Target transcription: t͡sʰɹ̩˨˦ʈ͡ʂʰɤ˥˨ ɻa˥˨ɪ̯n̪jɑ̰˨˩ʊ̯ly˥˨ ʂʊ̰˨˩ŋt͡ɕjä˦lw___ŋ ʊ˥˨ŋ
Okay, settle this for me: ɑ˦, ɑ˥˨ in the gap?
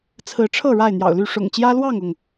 ɑ˥˨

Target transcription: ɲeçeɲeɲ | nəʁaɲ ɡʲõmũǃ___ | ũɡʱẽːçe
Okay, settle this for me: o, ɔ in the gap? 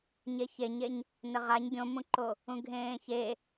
o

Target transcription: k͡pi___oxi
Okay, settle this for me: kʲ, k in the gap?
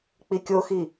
kʲ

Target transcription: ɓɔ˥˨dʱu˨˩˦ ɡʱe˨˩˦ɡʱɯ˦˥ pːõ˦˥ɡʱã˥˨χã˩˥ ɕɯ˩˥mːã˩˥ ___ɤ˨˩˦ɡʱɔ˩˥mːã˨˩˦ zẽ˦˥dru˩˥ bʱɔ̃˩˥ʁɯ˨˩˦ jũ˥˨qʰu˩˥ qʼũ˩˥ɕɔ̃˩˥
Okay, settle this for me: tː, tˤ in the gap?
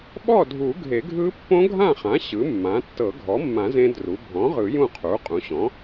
tː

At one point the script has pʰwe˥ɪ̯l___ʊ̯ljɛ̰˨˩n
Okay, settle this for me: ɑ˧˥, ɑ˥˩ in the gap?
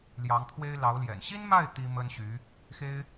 ɑ˧˥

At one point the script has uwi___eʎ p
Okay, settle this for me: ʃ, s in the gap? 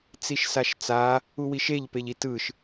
ʃ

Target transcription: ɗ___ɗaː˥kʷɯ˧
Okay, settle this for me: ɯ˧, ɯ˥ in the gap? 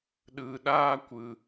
ɯ˧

